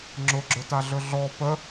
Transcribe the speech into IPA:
ŋ͡ǁ ʊ ɡ͡ǁ ɵ t a ɮ ɵ ɮ ɔ p ə

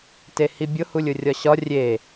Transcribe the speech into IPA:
t e h i bʲ ʊ h u lʲ ʊ rʲ ɒ ɕ ɒ rʲ e

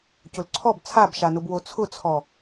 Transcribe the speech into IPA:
c ʊ l ǀʰ ɔ b t͡sʰ a b ʃ a n ʊ b w o t͡sʰ ʊ t͡sʰ ɔ

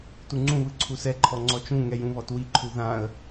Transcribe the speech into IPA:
t u ŋ͡ǀ ũ β ɯ ǀʰ u s ɛ ǃʰ ɔ ŋ͡ǀ ɔ t͡ʃ ũ ŋ ɛ j ũ β ɔ t w i ǃʰ u ð ã ə̯

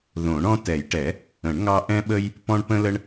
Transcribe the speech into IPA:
ð õ˨˩˦ ɳ ɔ̃˦ t ɛ˨˩˦ j ʈ ɛ˨˩˦ | ə̃˨˩˦ ɳ ŋ ɑ˦ ʔ ɛ̃˦ ɓ ə˦ j | p ɔ̃˦ ɳ p ə̃˦ l ə˦ ɳ

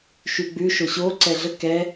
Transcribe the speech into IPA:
ʃ y ɡ͡b ʉ ʃ o ɕ o ǀ ɛ ɮ ə k ɛ

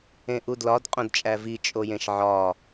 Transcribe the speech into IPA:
ẽ ʔ u d l ɒ d qʼ õ d t͡ʃʼ æ v i t͡ʃʼ o j ẽ ʃ ʕ ɒ

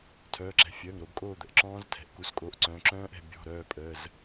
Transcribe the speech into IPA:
tʰ œː˩˧˩ ǁ ɛ̤˩˧ fʲ əː˩˧˩ ŋ ɾ o˩˧ b kʼ oː˦˨ d̪ ə˩ ʔ ǁ ɔ̃ː˦˥ z tʰ ɛ̤˩˥ ʔ k u˩˧ s kʼ o˩˧˩ ʔ ǀ œ̃ː˩˧ ǁ œ̃ː˦˥ ʔ ɛ̤˦˨ bʲ ɔ̤˩˧˩ ɾ œː˦˨ pʼ ə˩˧˩ z

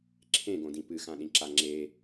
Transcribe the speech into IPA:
ǁʰ ẽ ɡ õ d ĩ p ɨ x ã ɗ ĩ ǁ a ŋ͡ǁ e

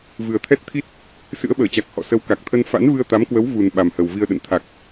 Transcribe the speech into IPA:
v ɨ˨˩ ə̯ t̪ʰ ɛ˦˥ t̚ t̪ʰ i˦˥ t̚ | s ɨ̰˧˥ ə̯ ɓ əː˧˩ t͡ɕ a˨˩ k̚ h ɔ̰˧˨ s ə˨˦ w k a˨˩ k̚ t̪ʰ ə˧ n f a̰˧˥ n v ɨ˧ ə̯ t̪ a˨˦ m k w ə˨˦ w v u˨˩ n ɓ a˨˩ m h ə˨˩ w v i˧ ə̯ ɗ ə̰˧˨ n t̪ʰ a˨˩ k̚

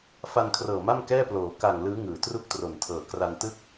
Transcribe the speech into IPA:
f a˧ n kʰ r ɤː˨˩ m a˥˩ m k ɛː˥˩ p l oː˩˦ k a˨˩ ŋ l ɯː˦˥ ŋ ɯː˩˦ t r u˥˩ k̚ t r o˨˩ n tʰ ɤː˨˩ k r a˧ n t ɯ˥˩ k̚

